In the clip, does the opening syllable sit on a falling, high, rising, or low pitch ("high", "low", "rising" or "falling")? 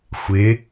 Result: rising